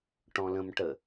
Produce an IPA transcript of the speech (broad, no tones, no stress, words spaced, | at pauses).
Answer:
ʈɔ̃lə̃mʈə